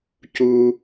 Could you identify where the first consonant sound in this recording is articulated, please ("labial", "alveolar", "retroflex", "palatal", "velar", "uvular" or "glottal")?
palatal